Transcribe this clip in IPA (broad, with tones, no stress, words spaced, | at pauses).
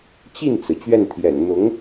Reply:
t͡ɕi˥˩nt͡sɹ̩˩ t͡ɕɥɛ˥˩nt̪ʰjɛ̰˨˩n n̪ʊ˧˥ŋ